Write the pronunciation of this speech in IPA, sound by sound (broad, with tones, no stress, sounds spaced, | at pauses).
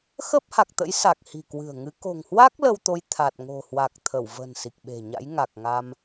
x əː˦˥ p̚ h a˨˩ k̚ t̪ ə̰˧˥ j s a˨˩ k̚ h i̤˨˩ k w ɨ̤˨˩ ə̯ ŋ ɨ˨˦ k o̤˨˩ ŋ h w a˦˥ k̚ l ə˧ w t̪ o˨˦ j t̪ʰ a˨˩ t̚ ŋ o̤˨˩ h w a˨˩ k̚ t̪ʰ ə˧˩ w v ə̤˨˩ n s i˨˩ k̚ ɓ e̤˨˩ ɲ a̰˧˥ j ŋ a˨˩ k̚ ŋ a˧ m